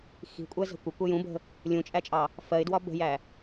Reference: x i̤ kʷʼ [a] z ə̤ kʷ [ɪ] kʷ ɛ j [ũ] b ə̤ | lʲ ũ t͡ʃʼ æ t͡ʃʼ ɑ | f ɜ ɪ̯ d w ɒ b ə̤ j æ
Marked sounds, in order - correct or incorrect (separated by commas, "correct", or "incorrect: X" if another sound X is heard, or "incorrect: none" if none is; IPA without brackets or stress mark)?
incorrect: æ, correct, correct